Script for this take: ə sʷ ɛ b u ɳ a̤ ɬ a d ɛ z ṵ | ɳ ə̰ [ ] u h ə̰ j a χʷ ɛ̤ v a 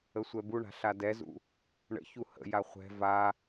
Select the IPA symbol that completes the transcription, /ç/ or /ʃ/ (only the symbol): ç